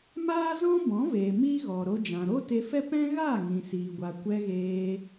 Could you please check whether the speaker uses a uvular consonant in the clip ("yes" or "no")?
no